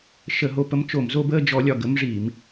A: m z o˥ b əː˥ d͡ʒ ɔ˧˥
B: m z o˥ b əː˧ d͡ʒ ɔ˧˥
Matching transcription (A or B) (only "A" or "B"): A